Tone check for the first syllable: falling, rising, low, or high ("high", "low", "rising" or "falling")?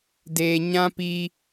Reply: low